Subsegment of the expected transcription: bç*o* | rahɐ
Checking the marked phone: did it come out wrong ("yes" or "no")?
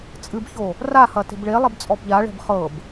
no